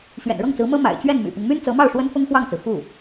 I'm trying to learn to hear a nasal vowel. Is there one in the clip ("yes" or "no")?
no